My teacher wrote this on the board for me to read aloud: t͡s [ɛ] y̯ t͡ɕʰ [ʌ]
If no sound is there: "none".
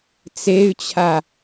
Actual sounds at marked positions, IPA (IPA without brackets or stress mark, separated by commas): e, a